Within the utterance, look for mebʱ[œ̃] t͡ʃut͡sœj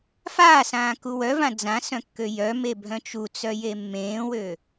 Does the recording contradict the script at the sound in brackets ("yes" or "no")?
no